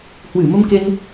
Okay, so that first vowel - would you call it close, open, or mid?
close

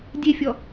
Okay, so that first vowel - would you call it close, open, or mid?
mid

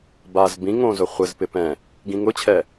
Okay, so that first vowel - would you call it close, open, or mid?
open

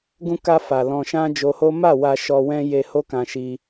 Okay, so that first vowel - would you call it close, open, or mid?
close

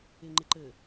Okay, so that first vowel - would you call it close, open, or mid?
close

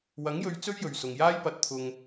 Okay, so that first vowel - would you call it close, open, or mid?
open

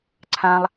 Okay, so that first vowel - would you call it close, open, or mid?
open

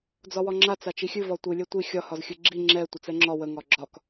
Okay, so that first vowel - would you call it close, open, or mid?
open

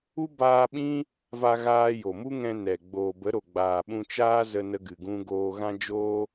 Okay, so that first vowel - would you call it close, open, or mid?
close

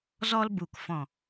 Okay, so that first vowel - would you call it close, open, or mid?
mid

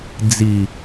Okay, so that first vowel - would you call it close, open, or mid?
close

